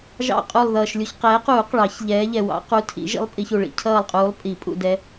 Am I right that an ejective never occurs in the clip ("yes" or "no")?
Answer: no